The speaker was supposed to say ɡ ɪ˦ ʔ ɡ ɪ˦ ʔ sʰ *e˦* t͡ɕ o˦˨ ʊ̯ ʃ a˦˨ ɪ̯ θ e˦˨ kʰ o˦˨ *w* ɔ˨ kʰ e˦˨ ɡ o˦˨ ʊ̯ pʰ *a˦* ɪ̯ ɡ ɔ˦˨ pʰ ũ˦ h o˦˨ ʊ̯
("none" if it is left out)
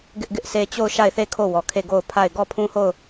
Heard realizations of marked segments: e˦, w, a˦˨

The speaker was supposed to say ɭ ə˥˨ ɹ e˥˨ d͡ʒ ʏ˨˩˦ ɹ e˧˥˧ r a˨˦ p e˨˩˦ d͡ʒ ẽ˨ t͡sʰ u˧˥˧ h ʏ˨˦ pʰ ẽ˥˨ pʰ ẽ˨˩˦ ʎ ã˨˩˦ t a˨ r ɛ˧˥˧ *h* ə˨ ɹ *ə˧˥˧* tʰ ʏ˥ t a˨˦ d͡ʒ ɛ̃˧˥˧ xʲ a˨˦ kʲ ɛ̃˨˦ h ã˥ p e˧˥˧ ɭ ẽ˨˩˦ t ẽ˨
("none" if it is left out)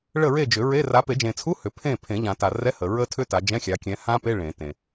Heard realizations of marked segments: h, ə˥

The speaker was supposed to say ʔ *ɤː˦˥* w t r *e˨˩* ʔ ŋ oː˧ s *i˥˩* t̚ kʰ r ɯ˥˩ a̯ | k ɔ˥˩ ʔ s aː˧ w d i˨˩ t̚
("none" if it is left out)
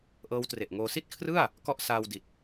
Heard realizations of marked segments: ɤː˦˥, e˨˩, i˥˩

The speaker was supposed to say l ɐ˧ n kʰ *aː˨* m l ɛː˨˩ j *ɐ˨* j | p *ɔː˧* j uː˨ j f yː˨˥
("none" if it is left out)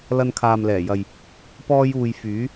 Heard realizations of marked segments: aː˨, ɐ˨, ɔː˧

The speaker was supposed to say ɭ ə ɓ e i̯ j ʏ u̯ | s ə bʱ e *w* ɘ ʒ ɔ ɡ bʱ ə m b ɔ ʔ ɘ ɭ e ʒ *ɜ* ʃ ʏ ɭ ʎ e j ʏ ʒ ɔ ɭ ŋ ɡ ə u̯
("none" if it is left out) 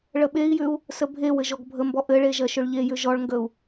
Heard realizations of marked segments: w, ɜ

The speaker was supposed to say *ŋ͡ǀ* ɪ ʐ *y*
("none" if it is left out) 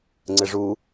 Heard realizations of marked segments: ŋ͡ǀ, u

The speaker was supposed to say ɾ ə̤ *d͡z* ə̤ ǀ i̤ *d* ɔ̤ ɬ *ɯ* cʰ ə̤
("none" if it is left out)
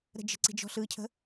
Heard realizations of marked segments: d͡ʒ, d͡ʒ, ɯ

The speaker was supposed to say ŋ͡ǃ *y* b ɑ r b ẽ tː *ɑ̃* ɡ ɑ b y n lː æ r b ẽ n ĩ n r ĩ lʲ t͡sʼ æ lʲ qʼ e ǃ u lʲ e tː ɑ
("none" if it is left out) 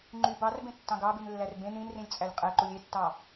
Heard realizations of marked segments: y, ɑ̃

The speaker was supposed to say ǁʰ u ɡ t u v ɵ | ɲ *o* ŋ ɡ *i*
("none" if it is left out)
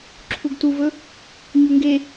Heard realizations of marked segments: u, e

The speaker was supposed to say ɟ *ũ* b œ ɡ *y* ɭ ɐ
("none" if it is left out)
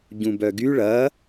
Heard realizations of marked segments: ũ, y

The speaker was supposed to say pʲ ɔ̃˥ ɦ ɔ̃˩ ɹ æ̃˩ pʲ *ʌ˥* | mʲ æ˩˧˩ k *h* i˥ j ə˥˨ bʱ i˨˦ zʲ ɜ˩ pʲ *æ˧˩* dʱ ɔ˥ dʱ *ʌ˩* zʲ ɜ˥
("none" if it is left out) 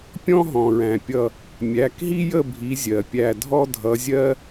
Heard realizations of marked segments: ʌ˧˩, ɦ, æ˧˩, ʌ˨˦

